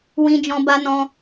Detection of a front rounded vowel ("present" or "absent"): absent